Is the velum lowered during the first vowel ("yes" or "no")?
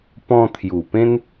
yes